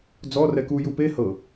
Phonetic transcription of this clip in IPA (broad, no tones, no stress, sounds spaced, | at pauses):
d͡z ɔ r ɛ k u j u p e h ɤ